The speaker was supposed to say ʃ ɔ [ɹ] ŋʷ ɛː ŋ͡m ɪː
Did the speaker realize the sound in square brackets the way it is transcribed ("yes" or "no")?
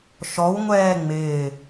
no